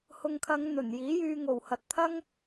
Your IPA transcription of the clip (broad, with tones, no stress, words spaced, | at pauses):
hʊ˨ŋkʰɐ˨˧ŋ n̪ɵ˨˩njiː˨˥jyː˧ ŋo˨˩whɐ˨t̚ t̪ʰɐ˥ŋ